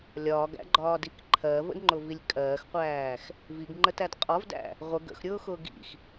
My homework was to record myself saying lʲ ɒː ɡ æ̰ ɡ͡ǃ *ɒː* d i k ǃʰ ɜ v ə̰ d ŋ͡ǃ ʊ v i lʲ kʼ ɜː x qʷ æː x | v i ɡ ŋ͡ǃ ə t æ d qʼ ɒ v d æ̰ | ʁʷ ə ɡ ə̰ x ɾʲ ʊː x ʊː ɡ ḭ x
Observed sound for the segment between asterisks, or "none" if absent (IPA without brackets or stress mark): ɒː